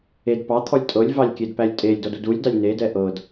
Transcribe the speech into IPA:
ed pɑt̪ʰɔlʲ tʼɤlʲvɑlʲkʲedpælʲ tʼelʲdɔdud ulʲdɑlʲ nedɛ ʔɤd

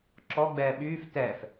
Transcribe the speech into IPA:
ǁɔɡ͡bɛː ɓyːf tɛf

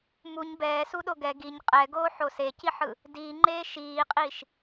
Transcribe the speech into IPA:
muɲ bɛːsuɗo ɡɛ ɡiɲ qʼɛɡoː ħoseciħɯ | diːŋ͡ǃeː ʃiːqʼiːʃ

